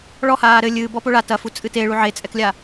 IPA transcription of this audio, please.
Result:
ɭ ɔ h aː ɾ ɘ lʲ ɨː b ɔ p o ɭ a t ɐ f u t͡sʼ ɨ t e ɭ u ʕ e t͡sʼ ɛ k lʲ a

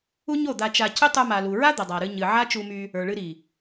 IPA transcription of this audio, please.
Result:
u˦ ɲ o˦˨ d̪ a˧ t͡ʃ a˧ c ʏ˦ tˤ ə˞˧ m a˨ l u˨ ɹ a˦ d̪ ə˨ dˤ a˨ ɾ ɨ˧ ɲ ɨ˨ ʕ a˦ t͡ʃ u˧ m y˧ | ə˞˨ ɭ ɨ˧ ɾ i˨

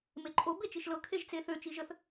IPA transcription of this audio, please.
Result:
m e ǃʼ o b e t͡ʃ i ʃ l ɤ kʰ e ʒ t͡s e θ ø t͡ʃ i ʒ ə θ

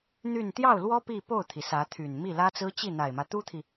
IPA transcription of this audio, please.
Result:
n̪ y˥˧ n t̪ j ɑ˥˩ ʊ̯ l w ɔ˥ p i˥˧ p o˥˩ ʊ̯ t̪ʰ i˩ s ä˧˥ t̪ʰ y˨˩ n m i˥˩ l ä˥ t͡s ɹ̩˥ t͡ɕ i˥˩ n̪ a˨˩ ɪ̯ m ä˦ t̪ u˥ t̪ʰ i˨

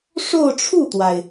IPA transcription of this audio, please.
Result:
ʂ o˥˧ ʊ̯ ʈ͡ʂʰ u˥˩ t̪ w a˩ ɪ̯

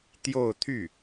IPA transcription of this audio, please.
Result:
t̪ j o˥˧ ʊ̯ t̪ʰ y˥˩

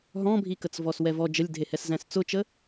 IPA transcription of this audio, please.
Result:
ɦ ɔ̃ bʱ i k ə t͡s v ɔ s w ɛ v ɔ d͡ʒ ə lʲ dʱ e h ɛ s z æ̃ s t͡s ʊ t͡ʃ ə

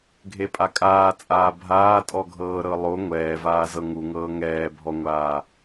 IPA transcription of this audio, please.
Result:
ɡʱ e pʼ a kʼ aː t͡sʼ aː bʱ aː tʼ ɔ ɡʱ ɤː ɾ ɤ lˠ o ŋʷ ɛː v aː z ɤ ŋ u ŋ ɤː ŋ ɛː bʱ ɔ ŋʷ aː

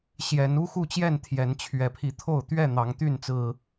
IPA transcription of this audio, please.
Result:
ɕ j ɛ˨˦ n u˦ x u˥˨ t͡ɕ j ɛ˥˨ n t̪ʰ j ɛ˨˦ n t͡ɕʰ ɥ ɛ˨˩ pʰ i˨˦ t̪ʰ o˥˨ ʊ̯ t̪ ɥ ɛ˥˨ n̪ ɑ˨˦ ŋ t̪ y˥˨ n t͡s ɹ̩˨˩

